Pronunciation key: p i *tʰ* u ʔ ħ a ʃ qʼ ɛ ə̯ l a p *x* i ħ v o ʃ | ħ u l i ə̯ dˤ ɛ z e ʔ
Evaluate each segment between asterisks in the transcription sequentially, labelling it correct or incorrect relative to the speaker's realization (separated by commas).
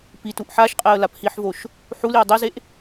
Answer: incorrect, incorrect